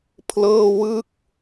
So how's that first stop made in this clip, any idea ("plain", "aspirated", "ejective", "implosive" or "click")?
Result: aspirated